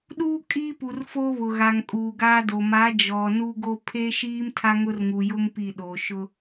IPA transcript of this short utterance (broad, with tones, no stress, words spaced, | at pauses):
ɗuː˦ kʼiː˦pu˨rfoː˦ βʊ˨ɣa˨ŋ kʼuː˨ɡaː˦do˨ ma˨˦ d͡ʒɔ˨nu˦ɡo˦ pʰe˦ʃiː˦m tʰa˦ŋʊ˦rŋu˨jʊ˦ŋ pi˦˨ɗo˨ ʃʊ˦